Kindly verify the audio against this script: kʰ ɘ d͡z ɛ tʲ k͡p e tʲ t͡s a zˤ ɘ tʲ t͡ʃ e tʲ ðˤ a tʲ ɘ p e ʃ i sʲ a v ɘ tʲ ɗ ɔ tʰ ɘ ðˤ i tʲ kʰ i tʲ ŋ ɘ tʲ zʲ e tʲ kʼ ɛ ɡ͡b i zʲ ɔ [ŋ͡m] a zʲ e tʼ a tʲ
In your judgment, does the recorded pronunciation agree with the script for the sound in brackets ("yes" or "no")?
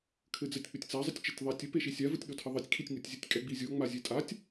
yes